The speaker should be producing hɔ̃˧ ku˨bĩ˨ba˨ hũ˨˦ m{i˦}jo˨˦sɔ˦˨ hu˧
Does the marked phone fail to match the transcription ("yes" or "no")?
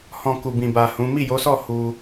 yes